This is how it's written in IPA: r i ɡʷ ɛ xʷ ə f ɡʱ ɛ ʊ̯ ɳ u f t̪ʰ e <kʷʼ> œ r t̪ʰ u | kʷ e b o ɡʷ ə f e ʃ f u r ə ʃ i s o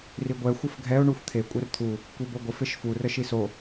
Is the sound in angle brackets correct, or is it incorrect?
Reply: correct